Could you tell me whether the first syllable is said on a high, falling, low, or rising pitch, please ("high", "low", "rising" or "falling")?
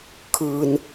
low